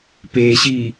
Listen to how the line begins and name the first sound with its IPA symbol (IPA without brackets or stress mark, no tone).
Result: p